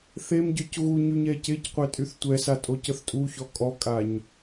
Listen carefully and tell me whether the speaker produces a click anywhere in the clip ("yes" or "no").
no